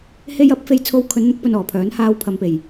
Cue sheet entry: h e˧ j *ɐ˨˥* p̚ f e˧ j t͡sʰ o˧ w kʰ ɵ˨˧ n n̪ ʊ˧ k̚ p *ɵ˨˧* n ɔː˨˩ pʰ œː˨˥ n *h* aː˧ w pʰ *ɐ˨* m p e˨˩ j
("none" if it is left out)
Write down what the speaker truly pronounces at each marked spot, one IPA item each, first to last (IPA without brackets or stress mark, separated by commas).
ɐ˨˥, ɵ˨, h, ɐ˨